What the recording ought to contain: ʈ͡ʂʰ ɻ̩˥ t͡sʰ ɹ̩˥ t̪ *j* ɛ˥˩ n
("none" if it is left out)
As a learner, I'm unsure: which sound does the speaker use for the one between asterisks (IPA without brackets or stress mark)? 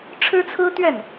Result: ɥ